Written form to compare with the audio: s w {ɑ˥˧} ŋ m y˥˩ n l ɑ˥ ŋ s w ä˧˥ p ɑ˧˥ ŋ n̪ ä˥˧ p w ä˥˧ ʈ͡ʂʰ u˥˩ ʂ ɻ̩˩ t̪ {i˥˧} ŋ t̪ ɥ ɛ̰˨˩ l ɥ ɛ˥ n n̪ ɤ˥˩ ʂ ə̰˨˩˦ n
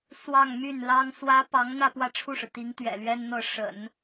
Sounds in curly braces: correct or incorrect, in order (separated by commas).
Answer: correct, incorrect